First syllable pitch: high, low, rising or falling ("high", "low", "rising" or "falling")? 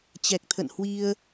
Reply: low